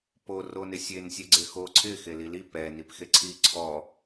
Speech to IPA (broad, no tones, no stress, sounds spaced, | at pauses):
p o r o n ɪ sʲ e n sʲ e ɡ͡ǀ e x o ǀʰ ɪ x e l i l i p ɛ n i p x e ǀʰ i ǀʰ ɔ